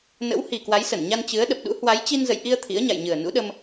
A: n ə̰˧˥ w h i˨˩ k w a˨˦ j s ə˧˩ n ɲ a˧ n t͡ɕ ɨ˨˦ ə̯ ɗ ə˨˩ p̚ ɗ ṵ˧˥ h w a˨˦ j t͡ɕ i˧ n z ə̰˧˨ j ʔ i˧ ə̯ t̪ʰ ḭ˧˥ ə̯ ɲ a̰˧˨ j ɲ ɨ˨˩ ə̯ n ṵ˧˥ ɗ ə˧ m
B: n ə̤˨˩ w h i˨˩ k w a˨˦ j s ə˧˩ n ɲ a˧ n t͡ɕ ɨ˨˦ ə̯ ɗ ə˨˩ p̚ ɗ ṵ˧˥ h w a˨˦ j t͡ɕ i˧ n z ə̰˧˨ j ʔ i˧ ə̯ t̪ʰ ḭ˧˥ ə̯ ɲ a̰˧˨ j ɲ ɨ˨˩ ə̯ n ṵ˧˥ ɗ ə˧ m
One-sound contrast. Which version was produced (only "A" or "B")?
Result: A